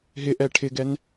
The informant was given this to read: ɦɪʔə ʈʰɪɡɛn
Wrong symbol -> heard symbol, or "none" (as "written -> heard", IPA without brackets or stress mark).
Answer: ə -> ɛ